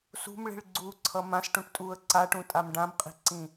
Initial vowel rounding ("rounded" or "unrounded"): rounded